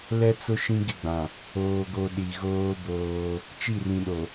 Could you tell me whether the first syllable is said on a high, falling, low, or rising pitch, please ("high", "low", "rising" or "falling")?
high